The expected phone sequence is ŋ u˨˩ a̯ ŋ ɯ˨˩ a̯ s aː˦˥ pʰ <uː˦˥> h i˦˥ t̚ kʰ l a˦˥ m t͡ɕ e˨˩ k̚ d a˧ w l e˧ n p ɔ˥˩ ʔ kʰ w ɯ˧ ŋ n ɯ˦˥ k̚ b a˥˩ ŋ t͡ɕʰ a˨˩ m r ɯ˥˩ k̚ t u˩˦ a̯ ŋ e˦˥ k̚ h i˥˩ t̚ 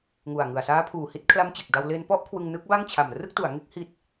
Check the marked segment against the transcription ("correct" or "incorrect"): incorrect